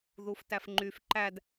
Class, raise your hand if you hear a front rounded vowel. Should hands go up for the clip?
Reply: yes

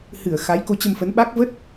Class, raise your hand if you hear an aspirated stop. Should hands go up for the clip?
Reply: no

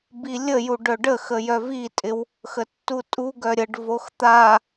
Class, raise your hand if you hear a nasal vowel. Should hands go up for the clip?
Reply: no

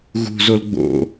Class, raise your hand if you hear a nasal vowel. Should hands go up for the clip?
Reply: no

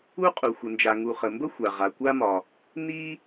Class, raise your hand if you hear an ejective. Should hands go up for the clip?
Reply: yes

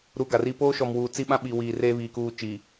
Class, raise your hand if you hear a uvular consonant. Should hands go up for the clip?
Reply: no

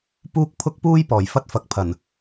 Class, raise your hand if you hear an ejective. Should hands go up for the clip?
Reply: no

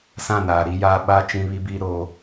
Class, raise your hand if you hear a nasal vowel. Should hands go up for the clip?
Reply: yes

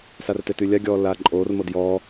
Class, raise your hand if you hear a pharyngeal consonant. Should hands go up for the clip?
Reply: no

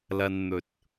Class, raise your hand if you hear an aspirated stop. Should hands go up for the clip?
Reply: no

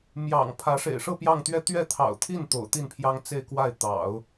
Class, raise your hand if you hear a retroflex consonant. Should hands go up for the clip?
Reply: yes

